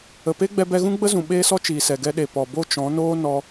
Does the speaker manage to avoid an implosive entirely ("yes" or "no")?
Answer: no